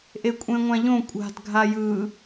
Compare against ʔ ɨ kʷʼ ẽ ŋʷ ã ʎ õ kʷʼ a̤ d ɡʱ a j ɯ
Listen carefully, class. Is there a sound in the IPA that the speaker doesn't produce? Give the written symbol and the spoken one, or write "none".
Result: ɨ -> e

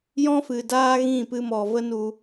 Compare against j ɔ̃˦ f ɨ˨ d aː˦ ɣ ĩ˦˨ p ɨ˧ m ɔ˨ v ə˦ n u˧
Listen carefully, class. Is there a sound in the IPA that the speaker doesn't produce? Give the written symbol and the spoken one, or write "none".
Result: none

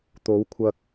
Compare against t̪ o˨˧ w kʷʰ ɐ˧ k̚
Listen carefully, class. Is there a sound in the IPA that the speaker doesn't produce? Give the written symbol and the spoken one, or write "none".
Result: none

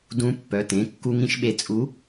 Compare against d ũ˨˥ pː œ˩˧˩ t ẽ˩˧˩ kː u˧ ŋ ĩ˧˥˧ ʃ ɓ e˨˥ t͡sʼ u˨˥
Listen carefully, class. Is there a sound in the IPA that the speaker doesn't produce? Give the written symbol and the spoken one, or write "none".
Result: none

